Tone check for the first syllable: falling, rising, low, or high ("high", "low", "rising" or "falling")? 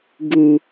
low